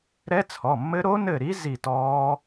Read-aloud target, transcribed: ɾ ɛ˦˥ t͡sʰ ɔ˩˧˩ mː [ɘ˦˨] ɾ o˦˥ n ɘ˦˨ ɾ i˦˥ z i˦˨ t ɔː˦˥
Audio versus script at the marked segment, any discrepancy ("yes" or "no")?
yes